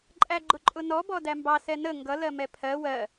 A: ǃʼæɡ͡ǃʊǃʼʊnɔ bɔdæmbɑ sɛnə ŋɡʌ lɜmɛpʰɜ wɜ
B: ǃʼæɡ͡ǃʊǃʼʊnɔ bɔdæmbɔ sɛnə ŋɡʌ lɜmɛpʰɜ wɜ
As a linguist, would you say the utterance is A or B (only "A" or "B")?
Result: A